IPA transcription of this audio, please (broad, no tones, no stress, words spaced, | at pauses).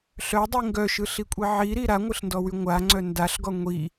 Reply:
ɬœdˤi ŋɡœʃɯɬikʷʼi ʕiɾi ɾaŋʷɯɬndɔwy ŋʷaŋ͡ǀœ ndaɬɡɔ ŋʷi